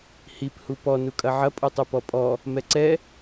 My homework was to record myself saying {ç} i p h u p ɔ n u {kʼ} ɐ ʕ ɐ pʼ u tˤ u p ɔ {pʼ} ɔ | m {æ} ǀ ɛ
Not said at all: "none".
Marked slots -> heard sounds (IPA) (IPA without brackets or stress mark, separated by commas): h, kʼ, pʼ, ɛ